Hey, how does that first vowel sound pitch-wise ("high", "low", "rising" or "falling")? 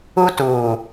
high